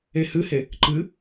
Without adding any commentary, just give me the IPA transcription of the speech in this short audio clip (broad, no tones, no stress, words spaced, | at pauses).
ehɨhe | ǃɨ